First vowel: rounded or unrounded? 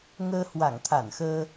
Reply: unrounded